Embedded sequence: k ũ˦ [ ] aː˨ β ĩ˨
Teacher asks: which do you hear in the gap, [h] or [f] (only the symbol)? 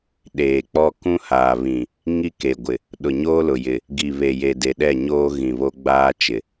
h